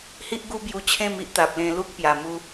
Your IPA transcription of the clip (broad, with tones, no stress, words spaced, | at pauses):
hi˦ʔɡu˦bju˧ t͡ɕʰẽ˥˧mi˦ʔ t̪a˨p̚ lẽ˧lu˦k̚ pja˨˩ mu˧